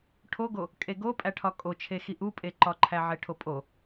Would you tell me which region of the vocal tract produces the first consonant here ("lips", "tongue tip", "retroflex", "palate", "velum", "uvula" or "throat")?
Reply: retroflex